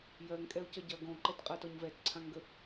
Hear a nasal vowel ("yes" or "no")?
yes